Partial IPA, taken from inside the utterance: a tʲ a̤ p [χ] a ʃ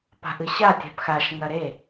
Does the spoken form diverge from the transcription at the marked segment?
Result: yes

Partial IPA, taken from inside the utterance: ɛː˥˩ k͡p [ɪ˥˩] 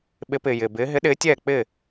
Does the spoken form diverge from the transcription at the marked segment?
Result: yes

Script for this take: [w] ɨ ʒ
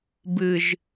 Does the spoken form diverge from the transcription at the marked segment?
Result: yes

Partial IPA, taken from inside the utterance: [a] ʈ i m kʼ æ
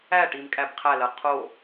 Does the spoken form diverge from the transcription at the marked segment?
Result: yes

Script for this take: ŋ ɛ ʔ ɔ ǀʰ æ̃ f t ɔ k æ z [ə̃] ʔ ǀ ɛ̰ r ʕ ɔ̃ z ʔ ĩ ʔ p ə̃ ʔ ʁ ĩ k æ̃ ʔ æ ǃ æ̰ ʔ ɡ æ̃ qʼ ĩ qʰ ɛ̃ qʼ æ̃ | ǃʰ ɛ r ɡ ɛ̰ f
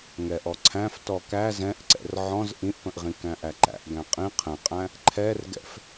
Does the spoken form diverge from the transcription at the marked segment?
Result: yes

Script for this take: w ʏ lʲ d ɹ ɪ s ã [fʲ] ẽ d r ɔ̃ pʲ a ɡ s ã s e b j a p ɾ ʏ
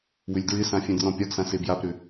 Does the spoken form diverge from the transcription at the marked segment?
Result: no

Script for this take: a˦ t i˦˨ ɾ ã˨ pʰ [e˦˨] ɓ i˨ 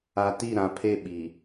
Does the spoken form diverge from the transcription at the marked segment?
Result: no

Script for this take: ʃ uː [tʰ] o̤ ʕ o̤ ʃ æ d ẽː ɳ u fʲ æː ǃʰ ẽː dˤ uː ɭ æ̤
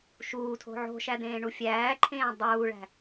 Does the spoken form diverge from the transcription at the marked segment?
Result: no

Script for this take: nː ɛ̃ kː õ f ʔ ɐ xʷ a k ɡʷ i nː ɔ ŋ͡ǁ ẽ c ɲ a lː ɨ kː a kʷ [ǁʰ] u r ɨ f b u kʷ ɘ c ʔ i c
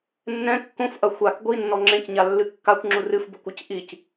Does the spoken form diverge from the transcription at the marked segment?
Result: yes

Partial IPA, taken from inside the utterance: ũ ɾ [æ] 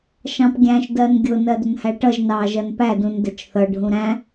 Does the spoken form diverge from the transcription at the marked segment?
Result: yes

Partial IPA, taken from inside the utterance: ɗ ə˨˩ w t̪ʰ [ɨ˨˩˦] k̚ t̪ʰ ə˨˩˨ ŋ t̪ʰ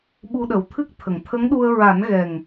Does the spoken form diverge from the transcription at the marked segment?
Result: yes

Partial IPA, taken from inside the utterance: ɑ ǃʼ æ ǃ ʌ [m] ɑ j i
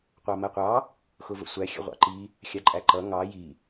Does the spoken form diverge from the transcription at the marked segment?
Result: yes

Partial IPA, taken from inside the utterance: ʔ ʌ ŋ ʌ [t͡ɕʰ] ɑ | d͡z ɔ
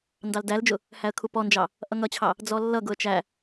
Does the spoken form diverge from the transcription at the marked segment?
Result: no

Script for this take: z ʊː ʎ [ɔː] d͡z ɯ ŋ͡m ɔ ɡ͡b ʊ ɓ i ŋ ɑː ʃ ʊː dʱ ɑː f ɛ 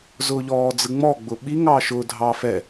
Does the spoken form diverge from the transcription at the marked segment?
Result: no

